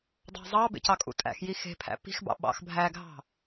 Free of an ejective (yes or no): no